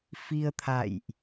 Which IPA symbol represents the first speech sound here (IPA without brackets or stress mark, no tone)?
f